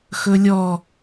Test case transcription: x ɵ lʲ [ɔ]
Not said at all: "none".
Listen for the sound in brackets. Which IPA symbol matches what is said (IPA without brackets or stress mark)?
ɔ